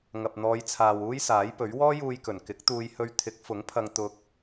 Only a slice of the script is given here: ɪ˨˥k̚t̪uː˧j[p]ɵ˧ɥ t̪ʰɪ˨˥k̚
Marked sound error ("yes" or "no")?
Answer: yes